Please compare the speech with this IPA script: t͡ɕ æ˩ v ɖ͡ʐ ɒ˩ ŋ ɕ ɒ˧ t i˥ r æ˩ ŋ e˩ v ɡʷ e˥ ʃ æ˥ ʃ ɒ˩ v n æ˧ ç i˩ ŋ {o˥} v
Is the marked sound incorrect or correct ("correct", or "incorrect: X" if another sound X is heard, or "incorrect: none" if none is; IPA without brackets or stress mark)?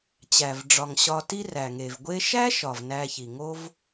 correct